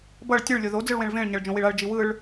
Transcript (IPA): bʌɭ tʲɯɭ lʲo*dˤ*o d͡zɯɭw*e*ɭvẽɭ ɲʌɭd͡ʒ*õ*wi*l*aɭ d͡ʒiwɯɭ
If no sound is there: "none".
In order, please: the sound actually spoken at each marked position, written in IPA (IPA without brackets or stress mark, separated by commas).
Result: ð, ẽ, õ, ɭ